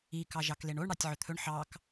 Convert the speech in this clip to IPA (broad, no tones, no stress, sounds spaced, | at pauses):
i k ɑ ʒ ɑ k l e ɳ o ɳ ɽ ɑ tʲ ʕ ɵ t̪ʰ ɵ ɳ ħ ɑ k